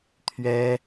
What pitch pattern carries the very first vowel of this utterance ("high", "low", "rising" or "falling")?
high